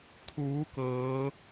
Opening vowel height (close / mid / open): close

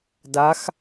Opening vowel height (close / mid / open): open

